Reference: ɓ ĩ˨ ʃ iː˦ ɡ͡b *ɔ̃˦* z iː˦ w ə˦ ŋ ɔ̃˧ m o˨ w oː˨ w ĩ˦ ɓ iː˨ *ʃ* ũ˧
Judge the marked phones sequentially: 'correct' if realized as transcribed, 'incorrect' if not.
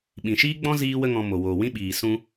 correct, incorrect: s

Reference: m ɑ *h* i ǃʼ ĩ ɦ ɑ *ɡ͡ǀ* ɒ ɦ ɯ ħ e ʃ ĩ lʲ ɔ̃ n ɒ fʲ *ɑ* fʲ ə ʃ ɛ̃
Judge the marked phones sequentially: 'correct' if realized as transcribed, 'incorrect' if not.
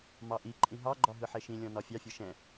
incorrect: ʔ, incorrect: ɡ͡ǃ, correct

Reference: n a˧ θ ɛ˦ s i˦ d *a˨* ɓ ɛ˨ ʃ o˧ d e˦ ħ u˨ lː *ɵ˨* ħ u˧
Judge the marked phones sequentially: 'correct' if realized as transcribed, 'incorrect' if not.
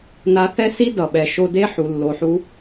incorrect: ʌ˨, incorrect: o˨

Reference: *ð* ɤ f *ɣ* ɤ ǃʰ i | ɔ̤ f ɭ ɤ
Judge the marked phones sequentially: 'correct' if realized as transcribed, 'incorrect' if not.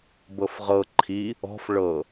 incorrect: b, incorrect: ʁ

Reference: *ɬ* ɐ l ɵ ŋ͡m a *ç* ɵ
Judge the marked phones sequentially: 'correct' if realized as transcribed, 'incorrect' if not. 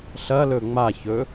correct, correct

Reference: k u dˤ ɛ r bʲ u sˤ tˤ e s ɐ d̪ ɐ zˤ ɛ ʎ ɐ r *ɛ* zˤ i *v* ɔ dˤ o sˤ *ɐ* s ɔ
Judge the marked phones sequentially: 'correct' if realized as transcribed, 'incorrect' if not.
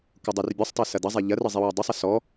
incorrect: ɘ, incorrect: w, correct

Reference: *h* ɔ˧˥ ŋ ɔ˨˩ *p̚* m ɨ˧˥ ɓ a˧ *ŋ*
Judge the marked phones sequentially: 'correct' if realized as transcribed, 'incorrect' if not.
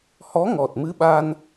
correct, incorrect: t̚, incorrect: n

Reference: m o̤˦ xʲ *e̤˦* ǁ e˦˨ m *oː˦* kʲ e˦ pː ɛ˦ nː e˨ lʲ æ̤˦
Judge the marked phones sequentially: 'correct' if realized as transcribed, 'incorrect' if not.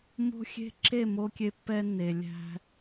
correct, incorrect: o˦

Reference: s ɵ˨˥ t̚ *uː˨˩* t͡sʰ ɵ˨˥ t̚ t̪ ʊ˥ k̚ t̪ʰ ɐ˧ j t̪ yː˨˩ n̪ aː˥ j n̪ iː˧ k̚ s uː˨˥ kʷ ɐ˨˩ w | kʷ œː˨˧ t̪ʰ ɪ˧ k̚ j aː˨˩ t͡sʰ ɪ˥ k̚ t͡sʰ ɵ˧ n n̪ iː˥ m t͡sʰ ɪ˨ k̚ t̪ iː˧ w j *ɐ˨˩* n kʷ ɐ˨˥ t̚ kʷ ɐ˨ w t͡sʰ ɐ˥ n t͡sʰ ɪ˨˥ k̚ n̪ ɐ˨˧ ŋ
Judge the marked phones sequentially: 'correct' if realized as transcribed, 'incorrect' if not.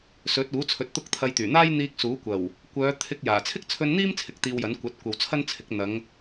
incorrect: uː˨˥, incorrect: ɐ˨˥

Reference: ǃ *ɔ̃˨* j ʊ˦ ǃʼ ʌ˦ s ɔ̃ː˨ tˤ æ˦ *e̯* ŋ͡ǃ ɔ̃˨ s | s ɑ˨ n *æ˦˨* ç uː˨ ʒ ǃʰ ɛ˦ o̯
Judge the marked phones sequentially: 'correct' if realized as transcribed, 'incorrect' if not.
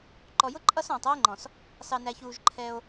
incorrect: ɔ˨, correct, incorrect: æ˨

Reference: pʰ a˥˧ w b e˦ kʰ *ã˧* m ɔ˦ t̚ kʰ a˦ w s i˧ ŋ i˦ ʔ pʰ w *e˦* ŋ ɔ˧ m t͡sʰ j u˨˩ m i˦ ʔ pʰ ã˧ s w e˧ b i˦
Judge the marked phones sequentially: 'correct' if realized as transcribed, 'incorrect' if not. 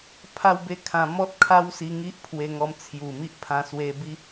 correct, incorrect: e˧

